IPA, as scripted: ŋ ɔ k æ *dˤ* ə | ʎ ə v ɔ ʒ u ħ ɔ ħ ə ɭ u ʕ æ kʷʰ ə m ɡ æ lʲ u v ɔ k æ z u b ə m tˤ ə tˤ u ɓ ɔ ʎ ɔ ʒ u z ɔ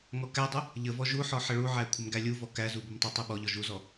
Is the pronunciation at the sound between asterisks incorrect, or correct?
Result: correct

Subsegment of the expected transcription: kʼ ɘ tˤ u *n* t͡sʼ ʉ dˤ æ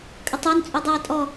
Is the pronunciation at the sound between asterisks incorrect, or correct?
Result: correct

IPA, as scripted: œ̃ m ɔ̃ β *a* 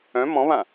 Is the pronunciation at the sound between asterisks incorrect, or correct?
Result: incorrect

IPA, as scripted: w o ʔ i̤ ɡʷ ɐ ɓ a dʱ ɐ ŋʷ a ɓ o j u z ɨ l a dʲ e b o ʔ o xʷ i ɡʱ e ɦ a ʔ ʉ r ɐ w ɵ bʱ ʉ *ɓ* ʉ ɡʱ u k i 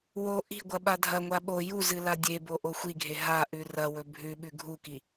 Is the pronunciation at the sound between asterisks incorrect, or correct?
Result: correct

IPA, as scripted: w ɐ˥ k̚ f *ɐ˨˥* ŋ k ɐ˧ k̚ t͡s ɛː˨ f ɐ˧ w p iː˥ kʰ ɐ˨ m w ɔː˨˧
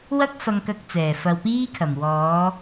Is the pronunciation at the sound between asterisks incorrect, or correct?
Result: incorrect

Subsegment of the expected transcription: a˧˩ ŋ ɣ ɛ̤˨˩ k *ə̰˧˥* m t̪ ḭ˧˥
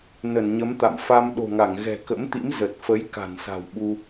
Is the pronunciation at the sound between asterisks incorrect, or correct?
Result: correct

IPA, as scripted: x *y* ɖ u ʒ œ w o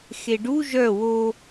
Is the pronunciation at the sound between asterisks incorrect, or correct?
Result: incorrect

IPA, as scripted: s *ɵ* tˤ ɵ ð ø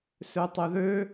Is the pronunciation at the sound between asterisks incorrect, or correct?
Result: incorrect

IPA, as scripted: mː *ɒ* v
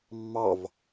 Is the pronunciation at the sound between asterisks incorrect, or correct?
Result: incorrect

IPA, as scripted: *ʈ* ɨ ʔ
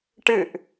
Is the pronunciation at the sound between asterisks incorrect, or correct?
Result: correct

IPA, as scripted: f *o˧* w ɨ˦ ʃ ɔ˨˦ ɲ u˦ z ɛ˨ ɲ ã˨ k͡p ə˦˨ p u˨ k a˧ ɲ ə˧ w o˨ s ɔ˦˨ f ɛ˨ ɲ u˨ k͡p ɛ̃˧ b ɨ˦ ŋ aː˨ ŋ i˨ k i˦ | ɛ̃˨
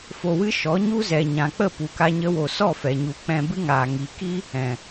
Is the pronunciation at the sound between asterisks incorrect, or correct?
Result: correct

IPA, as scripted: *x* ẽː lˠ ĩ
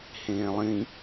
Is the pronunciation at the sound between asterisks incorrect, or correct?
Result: incorrect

